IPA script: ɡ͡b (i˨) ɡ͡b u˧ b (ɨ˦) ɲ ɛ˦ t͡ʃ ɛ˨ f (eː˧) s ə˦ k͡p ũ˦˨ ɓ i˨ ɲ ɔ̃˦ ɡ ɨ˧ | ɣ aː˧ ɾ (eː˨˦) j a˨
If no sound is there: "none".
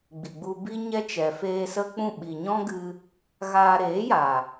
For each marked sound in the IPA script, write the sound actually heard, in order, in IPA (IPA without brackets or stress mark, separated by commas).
i˨, i˦, eː˧, eː˨˦